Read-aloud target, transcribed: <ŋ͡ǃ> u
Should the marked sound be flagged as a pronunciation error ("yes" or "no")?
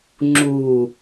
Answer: yes